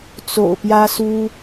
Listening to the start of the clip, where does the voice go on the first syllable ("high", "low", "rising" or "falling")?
low